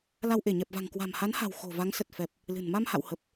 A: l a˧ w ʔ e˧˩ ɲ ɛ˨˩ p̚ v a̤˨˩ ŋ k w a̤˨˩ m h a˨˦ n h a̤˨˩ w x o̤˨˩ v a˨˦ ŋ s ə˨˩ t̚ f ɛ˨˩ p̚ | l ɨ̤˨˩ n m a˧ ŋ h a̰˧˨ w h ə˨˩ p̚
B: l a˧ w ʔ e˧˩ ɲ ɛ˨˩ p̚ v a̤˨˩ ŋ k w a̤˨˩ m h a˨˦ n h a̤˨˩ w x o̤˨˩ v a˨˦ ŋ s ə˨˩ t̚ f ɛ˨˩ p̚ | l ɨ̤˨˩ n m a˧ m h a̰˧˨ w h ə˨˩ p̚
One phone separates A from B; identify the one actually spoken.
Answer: B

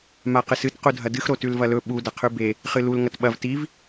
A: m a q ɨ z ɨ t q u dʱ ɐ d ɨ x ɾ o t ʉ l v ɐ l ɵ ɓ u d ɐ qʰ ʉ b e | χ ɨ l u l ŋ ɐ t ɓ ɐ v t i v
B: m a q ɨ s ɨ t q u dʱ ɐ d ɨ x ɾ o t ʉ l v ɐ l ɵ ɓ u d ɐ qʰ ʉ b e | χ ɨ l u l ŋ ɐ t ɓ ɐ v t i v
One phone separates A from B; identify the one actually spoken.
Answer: B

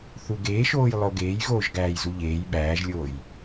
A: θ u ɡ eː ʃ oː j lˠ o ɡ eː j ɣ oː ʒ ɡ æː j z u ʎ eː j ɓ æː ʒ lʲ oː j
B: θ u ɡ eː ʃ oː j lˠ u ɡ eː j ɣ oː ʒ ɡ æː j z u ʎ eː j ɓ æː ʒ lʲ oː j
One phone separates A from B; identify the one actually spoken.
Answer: A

